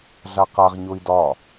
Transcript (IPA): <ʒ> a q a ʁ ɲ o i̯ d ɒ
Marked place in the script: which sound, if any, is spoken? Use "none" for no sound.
ɮ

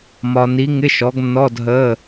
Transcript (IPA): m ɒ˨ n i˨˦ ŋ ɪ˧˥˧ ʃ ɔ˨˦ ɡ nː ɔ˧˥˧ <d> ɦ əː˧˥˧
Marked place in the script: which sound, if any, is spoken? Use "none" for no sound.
d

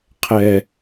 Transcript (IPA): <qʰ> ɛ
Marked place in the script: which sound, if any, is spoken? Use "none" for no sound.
qʰ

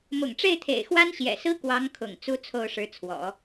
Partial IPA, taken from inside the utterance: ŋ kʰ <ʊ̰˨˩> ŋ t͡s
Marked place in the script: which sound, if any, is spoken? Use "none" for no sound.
ʊ̰˨˩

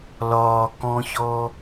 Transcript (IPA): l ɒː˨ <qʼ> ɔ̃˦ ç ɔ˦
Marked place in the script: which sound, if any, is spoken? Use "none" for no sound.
k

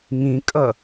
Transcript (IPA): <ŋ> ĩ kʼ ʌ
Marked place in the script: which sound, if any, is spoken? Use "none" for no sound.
ŋ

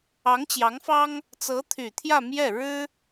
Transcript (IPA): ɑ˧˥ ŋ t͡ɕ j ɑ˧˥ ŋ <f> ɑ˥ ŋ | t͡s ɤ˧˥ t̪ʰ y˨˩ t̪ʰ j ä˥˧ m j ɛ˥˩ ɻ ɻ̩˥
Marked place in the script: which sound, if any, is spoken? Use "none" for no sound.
f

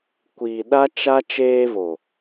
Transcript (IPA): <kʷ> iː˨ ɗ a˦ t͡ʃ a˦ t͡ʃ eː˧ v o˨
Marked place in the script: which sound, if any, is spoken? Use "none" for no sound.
kʷ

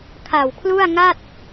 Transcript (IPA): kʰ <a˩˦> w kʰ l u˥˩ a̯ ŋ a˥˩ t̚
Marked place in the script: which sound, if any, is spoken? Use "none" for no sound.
a˨˩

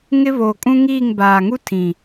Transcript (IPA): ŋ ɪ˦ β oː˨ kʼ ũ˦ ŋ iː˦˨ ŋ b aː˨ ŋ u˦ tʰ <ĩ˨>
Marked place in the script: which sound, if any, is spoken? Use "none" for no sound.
ĩ˨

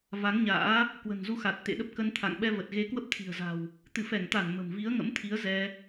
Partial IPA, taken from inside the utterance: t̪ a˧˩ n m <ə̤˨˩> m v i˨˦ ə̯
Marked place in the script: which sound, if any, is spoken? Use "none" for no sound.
ə̤˨˩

